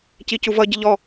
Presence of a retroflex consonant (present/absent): absent